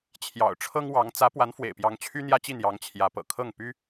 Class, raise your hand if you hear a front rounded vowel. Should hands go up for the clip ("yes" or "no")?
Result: yes